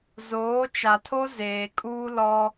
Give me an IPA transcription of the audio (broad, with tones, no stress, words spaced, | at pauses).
zoː˨˦t͡ʃa˨tʰo˦ zeː˨kʼuː˦ lɔ˦